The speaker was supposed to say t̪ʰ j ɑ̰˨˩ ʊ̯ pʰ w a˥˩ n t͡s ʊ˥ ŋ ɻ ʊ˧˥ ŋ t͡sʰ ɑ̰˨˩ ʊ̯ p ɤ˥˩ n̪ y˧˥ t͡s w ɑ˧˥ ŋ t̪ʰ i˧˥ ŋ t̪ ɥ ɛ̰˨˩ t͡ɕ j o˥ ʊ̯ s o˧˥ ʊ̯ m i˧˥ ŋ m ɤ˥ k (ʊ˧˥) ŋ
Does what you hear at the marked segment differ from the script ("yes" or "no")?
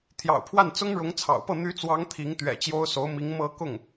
yes